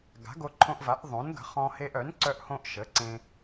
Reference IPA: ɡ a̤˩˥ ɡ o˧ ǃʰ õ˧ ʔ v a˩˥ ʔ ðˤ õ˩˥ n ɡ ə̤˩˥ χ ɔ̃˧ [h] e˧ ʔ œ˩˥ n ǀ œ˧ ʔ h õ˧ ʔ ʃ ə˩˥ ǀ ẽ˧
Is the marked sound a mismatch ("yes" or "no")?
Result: no